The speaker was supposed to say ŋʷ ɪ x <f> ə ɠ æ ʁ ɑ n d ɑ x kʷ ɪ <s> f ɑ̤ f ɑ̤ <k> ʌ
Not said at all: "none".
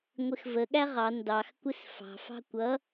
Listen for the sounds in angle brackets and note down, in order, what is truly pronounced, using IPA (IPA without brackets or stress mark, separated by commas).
v, s, kʷ